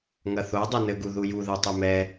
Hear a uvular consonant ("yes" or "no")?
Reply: no